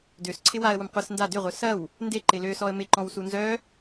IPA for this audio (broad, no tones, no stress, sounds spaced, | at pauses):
d ø s ǀʰ ɪ w a ə̯ w ʊ m qʷ ɪ s n d a d ʏ ʁʷ œ s ɐ w | n d e ǃ ɪ l ø s ɔ ə̯ m ɪ ǃ ɔ̃ w s u n z œ